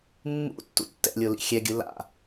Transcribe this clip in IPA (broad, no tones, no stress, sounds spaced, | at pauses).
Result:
mː ṵ tː ṵ tː ɛ̰ lʲ o l ḭ xʲ ɛ ɡʲ ɯ l a̰